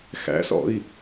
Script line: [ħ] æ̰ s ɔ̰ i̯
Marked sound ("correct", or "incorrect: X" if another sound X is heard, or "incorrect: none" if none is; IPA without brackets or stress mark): incorrect: x